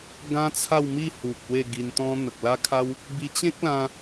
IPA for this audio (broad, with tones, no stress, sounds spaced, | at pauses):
ɡ ã˦ t͡sʰ a˥˧ w m i˥˧ h u˨ k̚ w e˥˧ ɡ i˧ n t̪ ɔ̃˦ n̪ ə˨ k̚ l a˦ kʰ a˦ w | b i˧ t͡ɕ ẽ˦ k̚ l ã˧